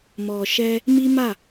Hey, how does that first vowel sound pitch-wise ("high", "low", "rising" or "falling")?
low